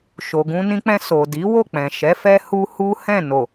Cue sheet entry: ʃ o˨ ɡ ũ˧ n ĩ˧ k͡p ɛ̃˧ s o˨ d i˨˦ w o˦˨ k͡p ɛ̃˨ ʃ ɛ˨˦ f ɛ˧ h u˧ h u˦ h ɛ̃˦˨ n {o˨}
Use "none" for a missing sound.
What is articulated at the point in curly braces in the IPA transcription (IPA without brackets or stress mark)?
o˨